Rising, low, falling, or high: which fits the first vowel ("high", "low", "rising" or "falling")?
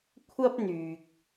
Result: high